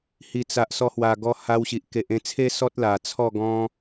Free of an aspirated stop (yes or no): no